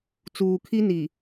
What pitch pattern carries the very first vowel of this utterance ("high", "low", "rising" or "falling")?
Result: low